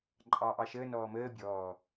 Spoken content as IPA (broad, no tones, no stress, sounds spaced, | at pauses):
ǃʼ ɑː ʔ ɑ ʃ əː n ɔː m əː bʲ ɔː